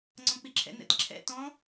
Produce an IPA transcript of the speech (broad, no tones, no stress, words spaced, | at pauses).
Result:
ŋ͡ǀɔ̃k͡piǁʰɛ̰n ɛ̰tǁʰɛ̰ tɔ̃